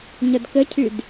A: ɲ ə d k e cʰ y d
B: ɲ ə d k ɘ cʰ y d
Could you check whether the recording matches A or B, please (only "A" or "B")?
B